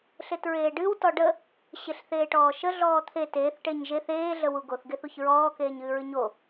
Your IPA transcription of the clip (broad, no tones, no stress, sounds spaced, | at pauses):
ɬ e t ɹ eː ɖ ɨ w t ɔ ɖ ə | ɕ e ɬ θ eː ʈ ɔː ʃ ə ɮ ɔː t̪ʰ e t eː θ ʈ e ɲ ʒ e θ eː ɮ ə w u ɡ o θ ɡ e θ u ç ɹ ɔː k eː ɲ ɨː ɹ ɨ ɲ o